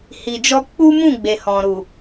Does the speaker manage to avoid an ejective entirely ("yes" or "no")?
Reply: yes